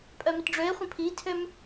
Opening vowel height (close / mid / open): mid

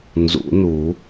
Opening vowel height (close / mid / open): close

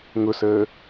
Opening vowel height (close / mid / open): close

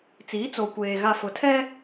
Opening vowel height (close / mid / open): close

